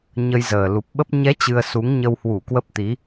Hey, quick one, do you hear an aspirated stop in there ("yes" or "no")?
no